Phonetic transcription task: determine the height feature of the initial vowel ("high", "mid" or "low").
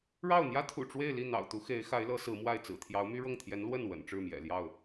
low